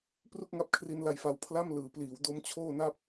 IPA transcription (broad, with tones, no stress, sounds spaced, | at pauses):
p r u˥˩ k̚ ŋ a˦˥ p̚ kʰ r i˧ n l a˧ j f a˦˥ w pʰ l a˥˩ m l ɯː˩˦ p l iː˩˦ w d o˦˥ m t͡ɕʰ oː˥˩ n a˥˩ p̚